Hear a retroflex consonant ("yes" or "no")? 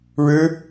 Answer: yes